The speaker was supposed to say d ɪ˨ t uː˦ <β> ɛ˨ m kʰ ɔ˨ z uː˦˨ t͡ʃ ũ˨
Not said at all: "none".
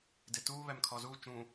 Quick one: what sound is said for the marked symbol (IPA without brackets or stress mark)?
β